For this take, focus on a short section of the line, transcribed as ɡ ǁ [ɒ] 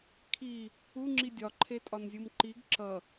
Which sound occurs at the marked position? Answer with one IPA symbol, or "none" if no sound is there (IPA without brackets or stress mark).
ʌ